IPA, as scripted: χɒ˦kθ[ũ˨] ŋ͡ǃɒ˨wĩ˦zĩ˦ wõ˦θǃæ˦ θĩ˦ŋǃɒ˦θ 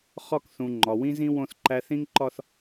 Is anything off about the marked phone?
no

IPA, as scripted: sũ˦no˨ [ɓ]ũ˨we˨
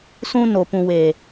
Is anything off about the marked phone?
yes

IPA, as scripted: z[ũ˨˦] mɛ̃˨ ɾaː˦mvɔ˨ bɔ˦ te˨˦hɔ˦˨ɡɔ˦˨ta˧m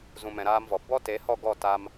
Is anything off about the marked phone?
yes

